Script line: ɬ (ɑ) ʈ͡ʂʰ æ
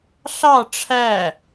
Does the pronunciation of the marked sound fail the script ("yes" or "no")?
no